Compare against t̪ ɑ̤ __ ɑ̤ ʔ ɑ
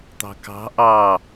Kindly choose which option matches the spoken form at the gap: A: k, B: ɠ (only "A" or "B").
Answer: A